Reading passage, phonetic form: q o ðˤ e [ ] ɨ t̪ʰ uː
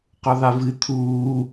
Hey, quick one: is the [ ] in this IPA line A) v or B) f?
A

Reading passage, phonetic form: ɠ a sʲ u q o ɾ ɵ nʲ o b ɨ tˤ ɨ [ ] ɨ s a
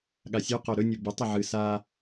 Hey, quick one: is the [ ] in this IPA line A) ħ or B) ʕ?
B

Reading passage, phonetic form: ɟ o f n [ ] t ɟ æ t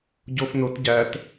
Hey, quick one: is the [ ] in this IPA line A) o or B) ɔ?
A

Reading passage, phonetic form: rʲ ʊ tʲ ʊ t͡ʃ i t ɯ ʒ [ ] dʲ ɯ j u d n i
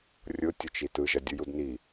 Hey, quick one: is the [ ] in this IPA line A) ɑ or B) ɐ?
B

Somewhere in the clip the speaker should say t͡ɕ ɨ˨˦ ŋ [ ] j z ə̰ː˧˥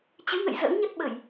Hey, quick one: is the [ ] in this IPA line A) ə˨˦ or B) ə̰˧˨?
B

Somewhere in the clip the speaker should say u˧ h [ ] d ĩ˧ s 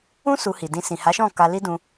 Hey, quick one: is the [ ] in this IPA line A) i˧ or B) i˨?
B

